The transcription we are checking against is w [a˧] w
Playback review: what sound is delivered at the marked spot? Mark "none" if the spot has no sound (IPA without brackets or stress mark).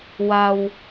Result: a˧